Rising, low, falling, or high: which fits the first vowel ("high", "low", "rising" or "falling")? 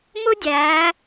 high